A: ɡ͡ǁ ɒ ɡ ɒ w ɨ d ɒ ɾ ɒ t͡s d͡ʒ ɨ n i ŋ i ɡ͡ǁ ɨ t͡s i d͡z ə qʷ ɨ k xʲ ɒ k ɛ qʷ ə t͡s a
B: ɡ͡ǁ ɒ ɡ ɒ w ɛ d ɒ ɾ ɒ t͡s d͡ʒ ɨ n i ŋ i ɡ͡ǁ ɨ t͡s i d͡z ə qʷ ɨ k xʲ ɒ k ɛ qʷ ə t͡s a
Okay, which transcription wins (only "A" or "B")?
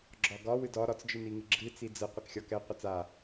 A